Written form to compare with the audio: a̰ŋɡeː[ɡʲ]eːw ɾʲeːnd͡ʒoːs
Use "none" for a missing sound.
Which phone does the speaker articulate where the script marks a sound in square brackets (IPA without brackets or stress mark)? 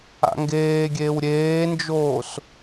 ɡʲ